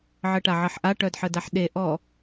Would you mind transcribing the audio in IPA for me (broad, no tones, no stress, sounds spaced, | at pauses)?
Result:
ʕ ə ʈ a ʕ ʌ ħ ʔ a ʈ œ d ħ ə d a ħ ɗ e ʔ ɔ